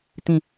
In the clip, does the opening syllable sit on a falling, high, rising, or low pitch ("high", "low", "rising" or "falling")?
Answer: falling